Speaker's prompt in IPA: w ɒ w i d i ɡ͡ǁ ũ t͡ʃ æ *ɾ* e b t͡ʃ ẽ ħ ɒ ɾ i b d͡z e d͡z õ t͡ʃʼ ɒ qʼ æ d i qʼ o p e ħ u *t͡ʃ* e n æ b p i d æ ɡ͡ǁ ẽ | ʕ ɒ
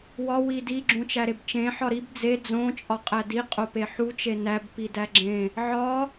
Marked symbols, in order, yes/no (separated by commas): yes, yes